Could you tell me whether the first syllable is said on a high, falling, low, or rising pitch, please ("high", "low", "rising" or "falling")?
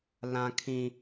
high